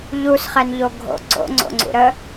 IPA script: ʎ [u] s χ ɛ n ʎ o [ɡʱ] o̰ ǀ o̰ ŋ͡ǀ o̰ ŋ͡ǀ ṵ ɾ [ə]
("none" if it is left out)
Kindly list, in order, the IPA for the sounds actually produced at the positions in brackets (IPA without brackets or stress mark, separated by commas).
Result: u, ɡʱ, ə